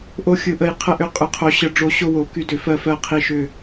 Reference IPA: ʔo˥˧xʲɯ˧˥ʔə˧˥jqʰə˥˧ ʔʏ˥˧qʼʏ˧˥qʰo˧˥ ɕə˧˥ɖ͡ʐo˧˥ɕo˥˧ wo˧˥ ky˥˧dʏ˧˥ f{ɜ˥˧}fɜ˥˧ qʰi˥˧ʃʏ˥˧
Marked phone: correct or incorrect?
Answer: correct